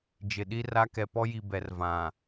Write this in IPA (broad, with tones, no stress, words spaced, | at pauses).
d͡ʒɪ˨ɗi˦ra˦ kɛ˨pɔ˦ji˨ bɛ˨r vã˨